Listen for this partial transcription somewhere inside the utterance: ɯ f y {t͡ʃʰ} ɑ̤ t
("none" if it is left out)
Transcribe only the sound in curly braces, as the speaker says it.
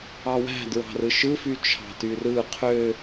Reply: t͡ʃʰ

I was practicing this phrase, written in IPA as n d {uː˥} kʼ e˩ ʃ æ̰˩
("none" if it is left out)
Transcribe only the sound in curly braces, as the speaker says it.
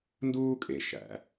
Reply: uː˥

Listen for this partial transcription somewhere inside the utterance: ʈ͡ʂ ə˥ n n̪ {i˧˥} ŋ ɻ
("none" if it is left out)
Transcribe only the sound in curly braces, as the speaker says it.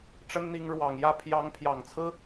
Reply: i˧˥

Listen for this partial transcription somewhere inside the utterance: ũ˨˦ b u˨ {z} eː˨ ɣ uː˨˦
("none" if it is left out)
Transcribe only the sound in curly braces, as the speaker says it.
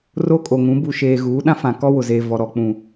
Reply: ʃ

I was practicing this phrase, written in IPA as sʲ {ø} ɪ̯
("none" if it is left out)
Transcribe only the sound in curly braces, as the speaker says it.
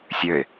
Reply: ø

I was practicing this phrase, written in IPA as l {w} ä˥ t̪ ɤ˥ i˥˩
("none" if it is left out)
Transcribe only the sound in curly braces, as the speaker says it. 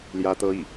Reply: j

